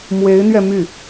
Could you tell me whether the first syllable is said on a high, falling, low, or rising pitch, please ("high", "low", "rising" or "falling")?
rising